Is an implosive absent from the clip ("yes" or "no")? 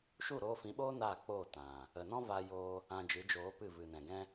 no